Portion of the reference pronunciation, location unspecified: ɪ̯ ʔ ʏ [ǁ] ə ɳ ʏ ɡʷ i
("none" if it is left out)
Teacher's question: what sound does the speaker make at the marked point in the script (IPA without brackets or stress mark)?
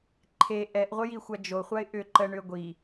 ǃ